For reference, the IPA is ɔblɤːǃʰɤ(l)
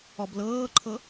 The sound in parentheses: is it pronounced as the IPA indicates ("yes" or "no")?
no